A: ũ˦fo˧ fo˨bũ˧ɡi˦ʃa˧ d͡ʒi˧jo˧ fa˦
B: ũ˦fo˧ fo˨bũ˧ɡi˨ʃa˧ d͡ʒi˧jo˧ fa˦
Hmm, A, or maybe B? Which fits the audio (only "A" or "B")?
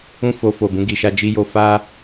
B